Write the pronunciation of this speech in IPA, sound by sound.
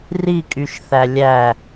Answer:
r i kʼ y ʃ θ æ lʲ æ

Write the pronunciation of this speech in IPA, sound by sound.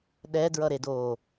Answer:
ɗ ɛ d ɹ ʌ ɾ e d oː

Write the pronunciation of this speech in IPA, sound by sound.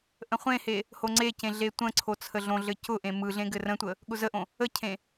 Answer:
ʔ ə̃ χʷ ẽ h e | h o ŋ͡ǀ e c ẽ ɮ e tʷ ə̃ ǀʰ o t͡sʰ ə ɮ õ ɮ ɘ c ʊ ʔ ẽ m ɯ ɮ ẽ ɡ ɘ r ə̃ tʷ ə | ɠ ʊ z ə ʔ õ | ə cʰ ẽ

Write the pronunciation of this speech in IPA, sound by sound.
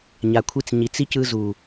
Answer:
ɲ a˨ kʷʰ i˧ t͡s ɲ i˨ t͡s i˦ c ɯ˧ z u˨

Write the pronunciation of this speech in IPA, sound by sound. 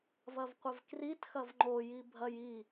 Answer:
v ɐ v qʷ ɛ v k r i t x ɐ v ŋ͡ǃ o j i bʱ ɐ j i

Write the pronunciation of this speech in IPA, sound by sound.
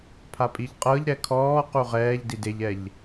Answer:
pʰ a pʼ i ʎ qʼ ɤ ʎ ɾ ɛ kʰ ɔː q u ʁ ɛː ʎ d i d e ʎ ɛ ʎ

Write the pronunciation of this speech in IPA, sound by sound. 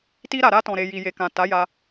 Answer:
t i˧ ɾ a˨ ɾ a˧ t ɔ̃˨ ɾ e˨ j i˨ j e˨ k ã˨ t a˨˦ j a˧

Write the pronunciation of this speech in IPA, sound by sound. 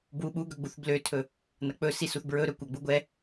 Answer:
b w u ɓ u ɡ ɵ ɡ͡b u θ b l ø tʰ ɵ | n ɐ k͡p ɵ s i s u θ b ɹ ɵ ɾ ɵ kʷ ɐ ɡ͡b u ɡʷ ɛ

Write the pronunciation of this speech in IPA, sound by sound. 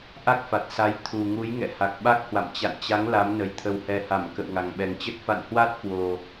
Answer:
ʔ a˦˥ k̚ f a˨˩ t̚ s a˨˦ j t̪ʰ u˨˩ ŋ u˨˦ j ŋ ɛ̰˧˨ h a˨˩ k̚ ɓ a˦˥ k̚ h w a̰˧˨ m t͡ɕ a̰˧˨ n t͡ɕ a˨˦ ŋ l a˨˦ m n ə˨˩ j t̪ʰ ə˨˩ w h ɛ˨˩ h a˧˩ m k ə̰˧˨ w ŋ a˨˩ ŋ ɓ ɛ˨˩ ŋ t͡ɕ ə˦˥ t̚ f a̰˧˨ n h w a˦˥ t̚ k w o˨˩

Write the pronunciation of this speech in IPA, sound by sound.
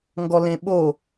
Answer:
ŋ ɡ ɔ l ẽ ɓ o

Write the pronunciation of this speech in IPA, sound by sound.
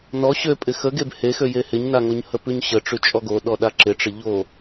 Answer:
n ɔ ɕ ø pʼ ɪ x ə ɡ e b h e x ø j e h ɪ ɲ n a ŋ o ɲ h ə p ʉ ɲ ɕ ə ʈ͡ʂ ʉ t͡ʃʼ ɔ ɡ o ɗ ɔ ɗ a ǁ ɪ ʈ͡ʂ ə ʎ o

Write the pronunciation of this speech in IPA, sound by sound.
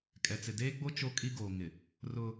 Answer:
kʼ ɛ˨ t͡s ɪ˨ d eː˦ ɡ͡b o˦ t͡ʃ o˦ kʼ i˦ ɡ oː˨ ŋ ɪ˨ | r ʊ˦

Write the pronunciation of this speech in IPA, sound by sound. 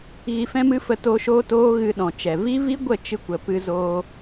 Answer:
ɣ i˧ f ɛ̃˦ m ɨ˦ f ə˧ t oː˧ ʃ oː˦ t oː˦ ɣ ɨ˧ ɗ ɔ̃˨ t͡ʃ ɛ˨ v i˦ v i˦ ɡʷ ə˦˨ t͡ʃ ɨ˧ kʷ ə˨ p ɨ˧ z oː˧

